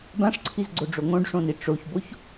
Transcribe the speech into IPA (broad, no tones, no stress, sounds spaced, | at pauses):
b ã ʂ ǀʰ i z ɡ͡ǀ o ɖ͡ʐ o ŋ õ ɖ ʂ õ n i ʈ͡ʂ o ç b o ç